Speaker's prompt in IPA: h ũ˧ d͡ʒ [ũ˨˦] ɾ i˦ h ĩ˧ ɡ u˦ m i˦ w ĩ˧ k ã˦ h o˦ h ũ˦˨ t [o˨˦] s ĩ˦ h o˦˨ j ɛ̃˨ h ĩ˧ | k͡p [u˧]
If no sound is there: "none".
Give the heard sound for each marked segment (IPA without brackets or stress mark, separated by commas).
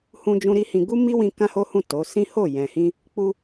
ũ˧, o˨˦, u˧